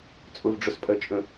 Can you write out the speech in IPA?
t͡sʼ ʊ v ɖ͡ʐ ʊ s pʼ ɜ t͡ʃʼ ə̃

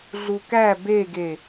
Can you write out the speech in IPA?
ɮ u k æ b e ɡ e

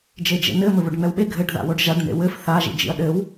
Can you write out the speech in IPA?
d͡ʒ e d͡ʒ ḛ n ɘ m ɘ β o ɖ ŋ͡m ɛ w ɓ e ɡʱ ɘ ɖ ð a̰ w o ɖ ʒ a ɖ n ḛ w ɘ f θ a ʒ ḭ d͡ʒ ḭ ɐ̯ ɗ ɘ w

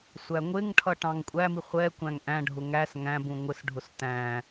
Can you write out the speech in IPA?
sʷ æ ŋʷ ɪ ŋ ʈʰ ʌ ʈ ɑ̃ ŋ kʷʼ æ m i χʷ ɛ kʷ æ̃ ŋ ʔ æ̃ ɖʱ ʊ ŋ æ s ŋ æ̃ b ũ ŋʷ ɪ s ɖʱ ʊ s t æ̃

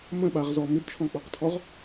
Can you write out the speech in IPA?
m ə̃ ɓ a ʁ z ɔ m ɪ d t͡ʃʰ ɔ̃ k͡p ɔ q tʰ ɔ ʁ

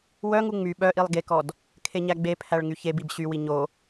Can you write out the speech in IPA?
w œ ŋ u ŋ͡m y ɓ œ ʔ i lˠ ɡ e k ɔ d | kʰ e ɲ æ ɡ͡b e pʰ æ ɭ ŋ y ç e b i b ɕ y w i ɲ o

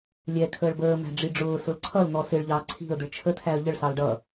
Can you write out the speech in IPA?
lʲ ɛ kʰ əː ɭ b əː m æ̤ ɖ͡ʐ i ɖ͡ʐ ʊː s ʊ l ǀʰ ʌ l n̪ ɔ s ɪ ɭ ʎ ɑː ǀʰ i̤ ə̯ d̪ ɪ ɭ t͡ʃʰ ə tʰ æ ə̯ ʎ ə ɭ s ɑ l ɖ ʌ

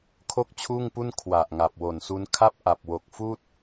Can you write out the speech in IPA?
kʰ o˥˩ k̚ t͡ɕʰ uː˥˩ ŋ p u˥˩ n kʰ w a˨˩ ʔ ŋ a˨˩ p̚ w o˨˩ n s u˧ n kʰ a˥˩ p̚ ʔ a˨˩ p̚ w o˨˩ k̚ f uː˥˩ t̚

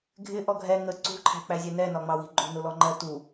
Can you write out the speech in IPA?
ɡʱ ɪ ʔ ɔ ɡʱ ɛ ŋ ə ǀ ṳ ǃʰ æ̤ k͡p æ zʲ ɛ n ɛ n ɒ ŋ͡m ɑ w i̤ ǃʼ ṳ n ʊ l ɔ ŋ͡ǃ ɜ t u

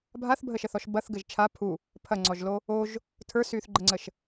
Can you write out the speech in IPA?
bʱ a θ bʱ ə ʃ ə θ ɔ ʃ b ɐ θ ɡ ɘ ʒ t͡ʃʰ a pʰ u | pʰ ɐ ŋ͡ǀ ɔ ʒ l o | o ʒ | tʰ ə˞ s yː θ ɡ͡ǃ ə ŋ͡ǀ ə ʃ

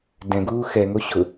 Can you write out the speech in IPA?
d ɛ̃ ɡ uː x ɛ ŋ o ɕ ʊ

